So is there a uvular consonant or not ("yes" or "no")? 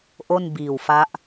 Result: no